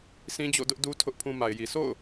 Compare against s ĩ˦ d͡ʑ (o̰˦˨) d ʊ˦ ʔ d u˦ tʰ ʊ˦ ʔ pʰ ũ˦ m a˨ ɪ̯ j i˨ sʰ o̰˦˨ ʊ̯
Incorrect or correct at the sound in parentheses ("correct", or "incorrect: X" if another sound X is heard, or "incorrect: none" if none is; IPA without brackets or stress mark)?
correct